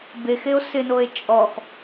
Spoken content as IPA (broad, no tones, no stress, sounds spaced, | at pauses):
b e x e o̯ s ɪ n o e̯ t͡ʃʼ ɔ x